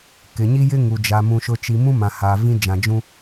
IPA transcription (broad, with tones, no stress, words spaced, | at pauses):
kɪ˨ɲi˦jɪ˦ ŋu˨d͡ʒa˨mũ˨ ʃʊ˨t͡ʃi˨ mũ˦mã˨ ha˨vĩ˦ d͡ʒã˨d͡ʒũ˦